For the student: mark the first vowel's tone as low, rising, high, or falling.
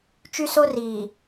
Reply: high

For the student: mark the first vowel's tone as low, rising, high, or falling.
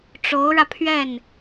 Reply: rising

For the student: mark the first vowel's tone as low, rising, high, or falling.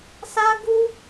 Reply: high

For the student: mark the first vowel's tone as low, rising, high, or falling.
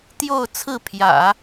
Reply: falling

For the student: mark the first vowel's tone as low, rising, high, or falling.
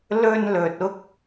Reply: high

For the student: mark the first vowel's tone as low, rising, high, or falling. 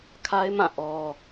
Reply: high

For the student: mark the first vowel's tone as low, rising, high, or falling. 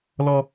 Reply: high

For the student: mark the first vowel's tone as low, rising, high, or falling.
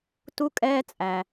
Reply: falling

